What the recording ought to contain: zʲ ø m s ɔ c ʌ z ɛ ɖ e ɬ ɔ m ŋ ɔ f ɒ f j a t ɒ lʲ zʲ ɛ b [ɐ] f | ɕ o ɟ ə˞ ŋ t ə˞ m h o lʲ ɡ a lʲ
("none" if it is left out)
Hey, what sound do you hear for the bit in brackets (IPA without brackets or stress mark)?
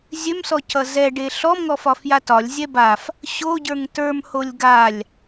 a